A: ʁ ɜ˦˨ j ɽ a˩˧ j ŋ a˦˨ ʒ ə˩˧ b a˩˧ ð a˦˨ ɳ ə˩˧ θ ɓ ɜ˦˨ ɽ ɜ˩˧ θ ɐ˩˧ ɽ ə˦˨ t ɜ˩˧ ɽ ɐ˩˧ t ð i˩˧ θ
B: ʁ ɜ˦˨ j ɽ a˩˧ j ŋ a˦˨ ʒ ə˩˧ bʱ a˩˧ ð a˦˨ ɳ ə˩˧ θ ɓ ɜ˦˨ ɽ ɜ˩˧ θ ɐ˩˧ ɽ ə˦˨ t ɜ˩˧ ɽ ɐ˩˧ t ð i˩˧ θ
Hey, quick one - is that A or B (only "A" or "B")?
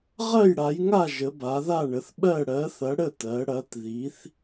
A